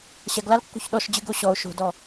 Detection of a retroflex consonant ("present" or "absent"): absent